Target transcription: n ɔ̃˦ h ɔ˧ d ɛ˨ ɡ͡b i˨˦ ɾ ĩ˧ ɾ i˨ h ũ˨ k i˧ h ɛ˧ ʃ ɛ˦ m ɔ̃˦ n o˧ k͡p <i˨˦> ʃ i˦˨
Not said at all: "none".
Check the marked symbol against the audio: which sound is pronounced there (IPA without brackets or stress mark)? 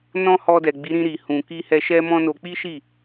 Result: i˦